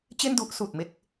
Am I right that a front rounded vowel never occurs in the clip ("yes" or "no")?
yes